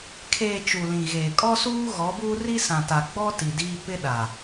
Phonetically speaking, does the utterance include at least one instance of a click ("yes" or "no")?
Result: no